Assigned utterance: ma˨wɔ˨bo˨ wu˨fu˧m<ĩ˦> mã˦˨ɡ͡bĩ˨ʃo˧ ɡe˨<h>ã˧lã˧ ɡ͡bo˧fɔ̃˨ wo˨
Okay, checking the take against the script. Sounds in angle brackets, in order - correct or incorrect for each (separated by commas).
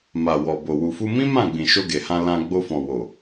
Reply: correct, correct